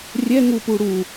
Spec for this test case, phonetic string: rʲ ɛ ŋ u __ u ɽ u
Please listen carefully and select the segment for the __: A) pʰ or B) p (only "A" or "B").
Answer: B